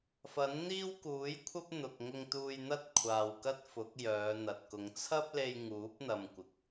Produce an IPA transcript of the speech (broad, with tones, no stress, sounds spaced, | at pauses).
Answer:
f ɐ˨˥ n n̪ iː˥ w k uː˨˥ j kʷʰ ɐ˥ p̚ n̪ ʊ˨ k̚ ŋ ʊ˧ ŋ t̪ uː˧ j n̪ ɐ˥ t̚ kʷʰ aː˨ w k ɐ˥ t̚ f ʊ˨˥ k̚ j œː˨˧ n̪ ɐ˨ t̚ k ʊ˨˧ ŋ t͡sʰ ɐ˥ p̚ l e˧ j ŋ uː˨˥ p̚ n̪ ɐ˧ m kʷ ɪ˨ k̚